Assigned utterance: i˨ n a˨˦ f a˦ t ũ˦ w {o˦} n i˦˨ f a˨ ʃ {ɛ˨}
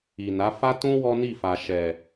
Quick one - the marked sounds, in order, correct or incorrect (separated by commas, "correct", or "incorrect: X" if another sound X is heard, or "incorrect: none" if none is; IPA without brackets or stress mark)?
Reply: incorrect: ɔ˦, correct